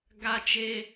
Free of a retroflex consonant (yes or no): yes